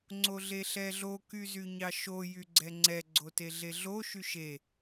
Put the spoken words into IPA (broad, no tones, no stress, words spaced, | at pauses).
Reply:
ŋ͡ǀoɮeɬɛɮo kyzyɲɑʃo jyɡ͡ǀɛŋ͡ǀɛ ɡ͡ǀoteɮeɮo ʃyʃe